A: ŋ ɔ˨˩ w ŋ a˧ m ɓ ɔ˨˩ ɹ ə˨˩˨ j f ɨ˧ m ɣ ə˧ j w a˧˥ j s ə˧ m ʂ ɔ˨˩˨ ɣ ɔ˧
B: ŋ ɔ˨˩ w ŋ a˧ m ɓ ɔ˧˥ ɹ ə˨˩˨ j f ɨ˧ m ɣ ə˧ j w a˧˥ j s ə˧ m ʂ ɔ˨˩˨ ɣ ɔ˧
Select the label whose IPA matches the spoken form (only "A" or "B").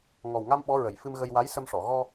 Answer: B